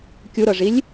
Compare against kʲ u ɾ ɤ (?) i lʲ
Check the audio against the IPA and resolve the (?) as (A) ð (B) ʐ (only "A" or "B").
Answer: B